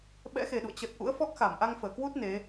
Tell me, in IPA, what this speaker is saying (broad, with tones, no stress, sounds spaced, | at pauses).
ɓ ɛ̰˧˥ x e˨˩ ɗ ṵ˧˨ ə̯ t͡ɕ ə˨˩ t̚ ʔ ṵ˧˥ ə̯ f ɔ˦˥ k̚ x a˧˩ m ʔ a˧ ŋ f əː˧˩ k w u˦˥ t̚ n e˨˦